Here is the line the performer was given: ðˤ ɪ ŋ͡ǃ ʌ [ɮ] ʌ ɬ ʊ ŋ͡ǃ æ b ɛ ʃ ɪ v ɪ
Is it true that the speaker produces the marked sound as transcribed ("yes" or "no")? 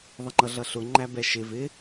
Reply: yes